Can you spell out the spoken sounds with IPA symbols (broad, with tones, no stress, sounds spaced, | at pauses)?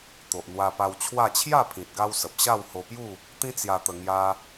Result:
t̪ o˨ ʔ n̪ w a˧ p a˧ w t͡ɕʰ w a˥˧ t͡ɕʰ j a˥˧ pʰ ĩ˨ t̚ ɡ a˧ w s ə˨ p̚ ɕ a˥˧ w h o˧ p j u˥˧ | t̪ ĩ˦ t͡s j a˧ t̪ ə˧ ŋ j a˧